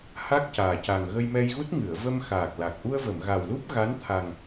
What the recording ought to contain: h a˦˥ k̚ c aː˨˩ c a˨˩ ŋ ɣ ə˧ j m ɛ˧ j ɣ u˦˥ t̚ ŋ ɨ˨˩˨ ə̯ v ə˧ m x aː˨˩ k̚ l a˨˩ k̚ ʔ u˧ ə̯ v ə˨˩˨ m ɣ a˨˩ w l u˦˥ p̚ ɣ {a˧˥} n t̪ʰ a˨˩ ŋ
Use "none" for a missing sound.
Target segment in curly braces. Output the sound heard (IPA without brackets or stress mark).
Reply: a˧˥